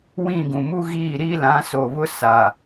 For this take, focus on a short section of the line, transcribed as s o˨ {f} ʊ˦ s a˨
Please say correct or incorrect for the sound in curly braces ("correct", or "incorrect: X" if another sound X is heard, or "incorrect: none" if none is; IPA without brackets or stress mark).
incorrect: β